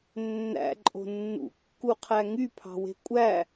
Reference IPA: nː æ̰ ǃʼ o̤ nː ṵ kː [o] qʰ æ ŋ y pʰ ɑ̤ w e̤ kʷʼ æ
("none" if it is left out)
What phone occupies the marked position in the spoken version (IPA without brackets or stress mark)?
u